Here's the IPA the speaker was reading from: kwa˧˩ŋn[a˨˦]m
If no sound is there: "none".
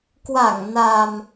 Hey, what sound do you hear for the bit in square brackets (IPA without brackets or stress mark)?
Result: a˨˩